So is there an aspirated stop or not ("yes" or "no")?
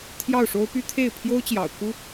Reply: yes